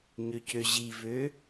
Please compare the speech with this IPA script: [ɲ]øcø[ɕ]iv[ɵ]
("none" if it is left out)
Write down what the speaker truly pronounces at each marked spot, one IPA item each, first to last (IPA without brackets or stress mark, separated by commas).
ɲ, ʑ, ø